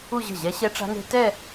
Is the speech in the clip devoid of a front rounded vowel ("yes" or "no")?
yes